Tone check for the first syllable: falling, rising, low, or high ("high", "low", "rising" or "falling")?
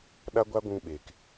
high